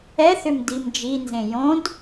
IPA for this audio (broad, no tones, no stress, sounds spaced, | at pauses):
ɛ θ ʏ m d i m d͡ʒ i n z ẽ j õ d